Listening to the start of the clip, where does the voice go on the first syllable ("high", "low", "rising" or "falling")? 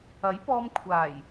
rising